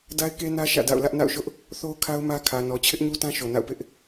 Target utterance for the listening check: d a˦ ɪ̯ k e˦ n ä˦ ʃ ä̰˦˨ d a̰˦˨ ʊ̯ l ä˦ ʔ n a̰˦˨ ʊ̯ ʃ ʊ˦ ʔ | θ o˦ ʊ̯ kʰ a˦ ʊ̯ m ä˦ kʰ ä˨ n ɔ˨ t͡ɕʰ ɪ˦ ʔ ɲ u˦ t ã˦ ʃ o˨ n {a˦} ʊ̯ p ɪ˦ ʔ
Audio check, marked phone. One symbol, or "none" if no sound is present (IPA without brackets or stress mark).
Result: a̰˦˨